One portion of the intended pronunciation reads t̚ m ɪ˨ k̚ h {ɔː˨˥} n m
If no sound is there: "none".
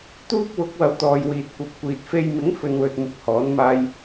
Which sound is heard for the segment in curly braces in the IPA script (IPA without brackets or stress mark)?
ɔː˨˥